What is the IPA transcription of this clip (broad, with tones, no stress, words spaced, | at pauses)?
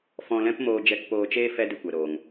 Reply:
fɔ̃˧lɛ̃˦pmoː˧ d͡ʒɛ˧kpoː˧t͡ʃeː˦ fɛ˦dɨ˧kʷɛ˨ ɾoː˨ŋ